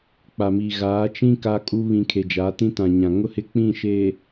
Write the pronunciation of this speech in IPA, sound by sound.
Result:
k͡p a˨ m iː˨ ɣ aː˨˦ t͡ʃ ĩ˦ k a˦ kʼ u˦ β ĩ˨ kʰ e˨ d͡ʒ a˨˦ t ĩ˦ t ã˨ ɲ ã˨ ŋ ʊ˦ h ɪ˦ k͡p ĩ˦˨ ʃ e˨

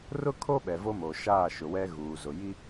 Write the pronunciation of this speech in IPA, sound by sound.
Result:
r ʊ˦ kʰ o˦ ɓ ɛ˨ v o˦ m o˨ ʃ aː˦˨ ʃ ʊ˨ w ɛ˦ ɣ uː˨ z ʊ˨ j i˦

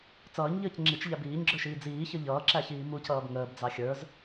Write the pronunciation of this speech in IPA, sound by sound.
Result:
t͡s ʌː ɲ ʎ əː c ŋ͡ǁ i t͡ʃ ʎ æ b iː ɲ ɡ͡ǁ ə˞ ʃ iː d͡z iː ç ʌ ʎ ʌː ǁ æ ç iː m u c ʌː b ŋ əː b d͡z ɑ xʲ ə˞ z

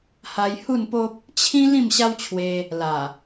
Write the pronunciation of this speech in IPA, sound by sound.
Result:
h a˧ j h u˥˧ n p o˦ p̚ | t͡ɕʰ ĩ˦ l ĩ˥˧ m ɕ a˦ w t͡ɕʰ w e˧ | l a˨˩

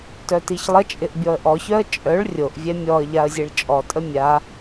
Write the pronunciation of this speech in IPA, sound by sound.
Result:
t œ t i ç lˠ ə t͡ʃʼ ɪ ʔ bʲ ɔ ə̯ ʔ ɔ ç œ ə̯ t͡ʃʼ œ ɭ rʲ o ʔ vʲ ɛ mʲ ɔ ə̯ ʎ a ə̯ zʲ e ɭ t͡ʃʼ ɔ tʼ ə mʲ a

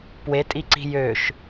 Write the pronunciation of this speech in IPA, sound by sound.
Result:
p w e tʼ i ǀ i̤ j ø ʃ

